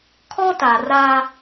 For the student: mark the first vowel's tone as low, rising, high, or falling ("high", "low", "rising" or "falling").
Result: high